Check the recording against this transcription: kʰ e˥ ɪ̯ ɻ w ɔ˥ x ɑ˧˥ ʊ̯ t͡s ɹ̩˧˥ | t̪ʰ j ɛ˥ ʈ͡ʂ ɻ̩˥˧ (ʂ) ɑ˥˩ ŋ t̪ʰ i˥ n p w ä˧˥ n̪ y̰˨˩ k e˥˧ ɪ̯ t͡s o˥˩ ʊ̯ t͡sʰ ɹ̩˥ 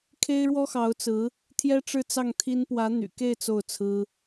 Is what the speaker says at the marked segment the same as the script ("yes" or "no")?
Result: no